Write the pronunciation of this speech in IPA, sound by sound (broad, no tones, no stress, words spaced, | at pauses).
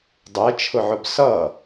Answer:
dˤɛt͡ʃʰʊʕʊb sʌ